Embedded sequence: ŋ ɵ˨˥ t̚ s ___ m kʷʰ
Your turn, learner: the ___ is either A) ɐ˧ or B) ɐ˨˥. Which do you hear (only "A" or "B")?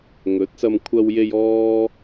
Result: A